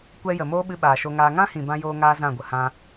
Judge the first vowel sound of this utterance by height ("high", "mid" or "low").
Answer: mid